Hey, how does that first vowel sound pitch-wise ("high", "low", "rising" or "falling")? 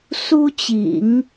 high